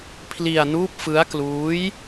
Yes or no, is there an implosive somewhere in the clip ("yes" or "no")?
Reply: no